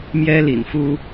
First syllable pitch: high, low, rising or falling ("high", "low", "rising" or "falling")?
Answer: high